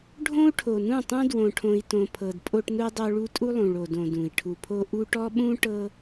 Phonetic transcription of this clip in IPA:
ɖʱõ˦u̯ʈʰo˨nũ˦˨tˤũ˦ dwõ˨ʈʰõ˨i̯ tõ˨pʰɤ˨d pʼo˦ʈnu˦dˤo˦ɭu˦ tʼu˦lˠũ˨ɭo˨dõ˨ dũ˨i̯ ʈʰu˨pʰo˦ ʔu˦ʈɔ˦ɓũ˦ ʈɤ˦

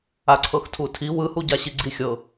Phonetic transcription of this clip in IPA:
aǀʰɤxtʰutʰi wɯhuɟa ɕiɡ͡ǀixʲɤ

